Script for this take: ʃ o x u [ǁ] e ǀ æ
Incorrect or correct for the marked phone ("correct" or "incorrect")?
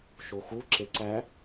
correct